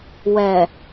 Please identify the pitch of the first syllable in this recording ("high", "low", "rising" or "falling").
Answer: low